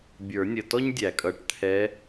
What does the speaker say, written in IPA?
bʲ ə˞˨˩˦ nʲ ə˩˧˩ t ɔ˥ ɲ dʲ æ˨˩˦ kʼ ʌ˩˧˩ ʈ t̪ʰ ɛ˧˥

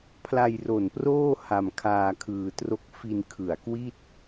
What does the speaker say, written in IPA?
pʰ l a˧ j r o˨˩ n p r oː˥˩ h a˧ m kʰ aː˧ kʰ ɯː˧ t r o˥˩ k̚ f i˧ n kʰ ɯ˨˩ a̯ k w i˥˩ t̚

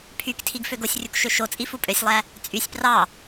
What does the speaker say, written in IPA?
pʰ y k tʰ i ɡ f ø ɡ o sʲ rʲ u k ʃ ø ʃ o t͡sʼ i f u pʼ ø sʲ lˠ æ | t͡sʼ y sʲ p r ɑ

